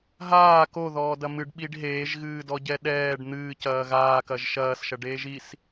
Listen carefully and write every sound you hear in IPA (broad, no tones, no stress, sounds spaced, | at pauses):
ɦ aː k o ð ɔː d ɐ m ɨ ɖ ɓ i ɖ ɦ eː ʒ ɣ ɨː d ɔ ɟ ɛ ɗ ɛː ɖ n̪ ɨː c ɐː ɣ aː k ɐ ʒ ʃ ɐː s ʃ ɐ ɖ eː ʒ i s